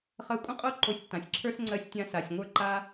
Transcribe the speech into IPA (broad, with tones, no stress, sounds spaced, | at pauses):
χ ɜ˧ kʷʼ ə̃˥ qʼ o˥ ǃ o˧ sʲ tː ã˩ sʲ ǁʰ ə˞˥ s ŋ͡ǀ ɜ˥ sʲ tʲ ã˥ s a˩ sʲ ŋʷ ə˞˥ ǃ a˥